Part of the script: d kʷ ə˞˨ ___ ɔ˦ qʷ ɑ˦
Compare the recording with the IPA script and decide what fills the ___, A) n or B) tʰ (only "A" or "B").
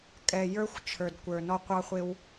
A